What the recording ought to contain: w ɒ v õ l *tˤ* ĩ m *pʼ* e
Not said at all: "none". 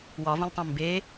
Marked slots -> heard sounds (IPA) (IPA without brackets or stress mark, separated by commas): tˤ, b